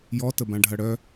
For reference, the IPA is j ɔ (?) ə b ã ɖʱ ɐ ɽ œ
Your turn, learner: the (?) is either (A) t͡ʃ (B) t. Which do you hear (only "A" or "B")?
B